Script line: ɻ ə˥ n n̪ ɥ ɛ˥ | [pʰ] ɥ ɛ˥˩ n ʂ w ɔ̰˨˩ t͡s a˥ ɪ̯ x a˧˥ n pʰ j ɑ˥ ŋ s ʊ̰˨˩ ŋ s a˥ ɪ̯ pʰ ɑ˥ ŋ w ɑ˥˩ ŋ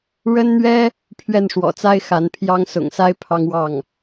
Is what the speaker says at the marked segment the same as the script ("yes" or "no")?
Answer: yes